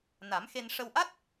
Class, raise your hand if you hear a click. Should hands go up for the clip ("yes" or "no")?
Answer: no